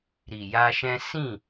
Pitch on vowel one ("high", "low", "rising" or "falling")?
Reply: low